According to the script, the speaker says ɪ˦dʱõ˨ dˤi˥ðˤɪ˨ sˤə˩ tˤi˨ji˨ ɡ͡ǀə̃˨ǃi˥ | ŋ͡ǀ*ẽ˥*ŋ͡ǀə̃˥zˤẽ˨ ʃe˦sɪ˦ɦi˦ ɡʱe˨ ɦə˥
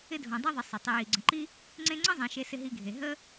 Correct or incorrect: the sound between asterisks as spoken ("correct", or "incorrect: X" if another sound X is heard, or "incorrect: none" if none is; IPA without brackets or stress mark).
incorrect: ẽ˦